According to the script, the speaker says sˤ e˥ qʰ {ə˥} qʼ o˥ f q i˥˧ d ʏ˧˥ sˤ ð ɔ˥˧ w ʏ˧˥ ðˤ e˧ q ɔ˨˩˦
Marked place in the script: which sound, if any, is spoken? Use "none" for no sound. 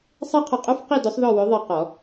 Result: ə˧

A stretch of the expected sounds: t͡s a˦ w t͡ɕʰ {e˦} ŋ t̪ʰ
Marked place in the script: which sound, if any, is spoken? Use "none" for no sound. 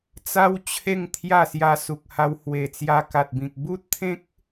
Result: e˥˧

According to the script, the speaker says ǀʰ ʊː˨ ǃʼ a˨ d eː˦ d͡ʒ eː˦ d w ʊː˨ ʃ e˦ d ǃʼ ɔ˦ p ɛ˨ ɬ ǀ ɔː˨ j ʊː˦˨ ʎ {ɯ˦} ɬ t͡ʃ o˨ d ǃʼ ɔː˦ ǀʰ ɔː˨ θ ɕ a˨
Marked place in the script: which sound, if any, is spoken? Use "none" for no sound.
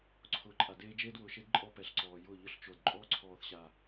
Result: ʊ˦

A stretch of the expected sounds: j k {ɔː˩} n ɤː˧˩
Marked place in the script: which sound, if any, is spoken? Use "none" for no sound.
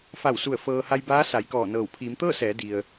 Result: ɔː˧˩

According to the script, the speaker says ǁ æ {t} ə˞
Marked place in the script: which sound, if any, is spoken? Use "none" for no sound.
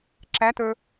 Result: t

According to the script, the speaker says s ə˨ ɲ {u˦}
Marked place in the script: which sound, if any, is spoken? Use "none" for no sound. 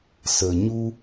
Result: u˦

